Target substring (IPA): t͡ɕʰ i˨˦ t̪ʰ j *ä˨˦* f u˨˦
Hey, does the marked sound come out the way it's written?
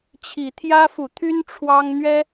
no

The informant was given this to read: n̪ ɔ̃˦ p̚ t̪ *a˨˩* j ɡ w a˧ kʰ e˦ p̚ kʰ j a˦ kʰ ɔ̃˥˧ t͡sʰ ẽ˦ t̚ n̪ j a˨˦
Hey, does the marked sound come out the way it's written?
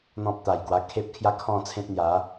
yes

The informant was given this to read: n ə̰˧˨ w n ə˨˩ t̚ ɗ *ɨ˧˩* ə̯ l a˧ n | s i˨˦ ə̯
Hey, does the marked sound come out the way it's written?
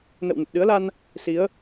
no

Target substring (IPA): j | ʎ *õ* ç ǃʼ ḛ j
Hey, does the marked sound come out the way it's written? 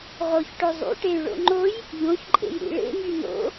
yes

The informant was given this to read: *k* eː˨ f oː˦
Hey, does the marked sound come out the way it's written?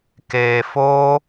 yes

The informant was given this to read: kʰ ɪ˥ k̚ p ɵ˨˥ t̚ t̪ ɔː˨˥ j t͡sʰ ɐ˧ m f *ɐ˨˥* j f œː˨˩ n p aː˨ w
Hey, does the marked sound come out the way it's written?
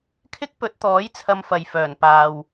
no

